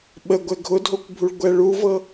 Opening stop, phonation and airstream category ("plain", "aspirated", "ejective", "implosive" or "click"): implosive